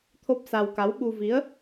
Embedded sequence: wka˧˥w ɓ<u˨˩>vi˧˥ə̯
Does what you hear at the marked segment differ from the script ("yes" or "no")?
yes